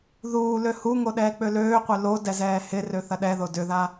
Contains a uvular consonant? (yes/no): yes